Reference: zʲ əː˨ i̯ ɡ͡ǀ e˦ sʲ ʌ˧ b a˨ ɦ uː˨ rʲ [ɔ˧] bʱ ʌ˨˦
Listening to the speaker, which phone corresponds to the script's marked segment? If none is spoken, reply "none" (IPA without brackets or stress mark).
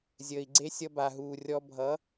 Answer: ɔ˧